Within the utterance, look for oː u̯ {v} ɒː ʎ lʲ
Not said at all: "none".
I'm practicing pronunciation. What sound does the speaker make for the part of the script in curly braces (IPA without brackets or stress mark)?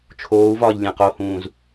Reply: v